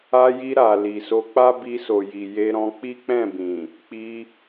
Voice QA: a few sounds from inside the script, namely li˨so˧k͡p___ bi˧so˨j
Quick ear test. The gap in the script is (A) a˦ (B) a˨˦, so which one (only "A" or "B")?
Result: A